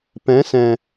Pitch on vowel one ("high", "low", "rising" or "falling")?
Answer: rising